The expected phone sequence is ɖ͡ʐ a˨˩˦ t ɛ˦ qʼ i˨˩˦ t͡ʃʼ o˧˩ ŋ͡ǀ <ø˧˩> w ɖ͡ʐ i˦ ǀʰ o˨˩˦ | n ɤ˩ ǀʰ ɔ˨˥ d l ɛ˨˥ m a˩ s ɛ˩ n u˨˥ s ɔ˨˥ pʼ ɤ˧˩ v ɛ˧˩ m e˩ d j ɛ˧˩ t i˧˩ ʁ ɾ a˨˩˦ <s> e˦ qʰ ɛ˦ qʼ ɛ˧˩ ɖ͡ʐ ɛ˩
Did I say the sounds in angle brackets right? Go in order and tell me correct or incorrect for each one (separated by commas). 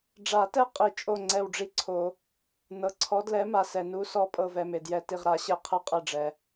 incorrect, incorrect